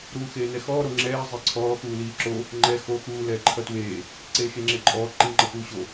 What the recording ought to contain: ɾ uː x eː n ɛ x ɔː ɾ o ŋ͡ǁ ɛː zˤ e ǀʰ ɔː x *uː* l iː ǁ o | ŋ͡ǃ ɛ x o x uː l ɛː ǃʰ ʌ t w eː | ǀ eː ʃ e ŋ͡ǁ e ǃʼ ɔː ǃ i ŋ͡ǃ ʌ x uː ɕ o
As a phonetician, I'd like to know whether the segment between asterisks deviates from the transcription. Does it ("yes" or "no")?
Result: no